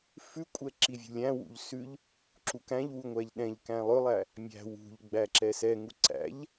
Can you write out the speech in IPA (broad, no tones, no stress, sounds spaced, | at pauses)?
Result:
f ʉ kʷʼ ɛ ǁ i vʲ ṳ lʲ æ̃ w ṵ ʎ s ʉ ʎ | ǁ u k æ̃ ʎ w u ŋʷ æ ʎ ɗ ɛ̃ ʎ k æ̃ lˠ ɵ lˠ æ | mʲ æ̤ w ṳ ʎ ɡ͡b æ ǁ ɛ s ɛ ŋ u ǀ æ̰ ʎ